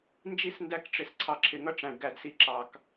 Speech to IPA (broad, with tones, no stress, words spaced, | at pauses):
nd͡ʒi˦˨sndæ˧kʈ͡ʂɪ˨s ǀʰɑ˨ǁʰɪ˨ŋʌ˦ ʈ͡ʂæ̃˨ɖɡæ˧dsi˧ ǁɑ˨k